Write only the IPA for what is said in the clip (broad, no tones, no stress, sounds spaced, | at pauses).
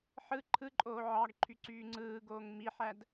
ħ ɯ ǃʰ ɯ ǃʼ oː ʕ ɑ ɡ ǃʰ y ǀ yː ŋ͡ǀ ɯː ɡ oː ŋ m i ħ æ d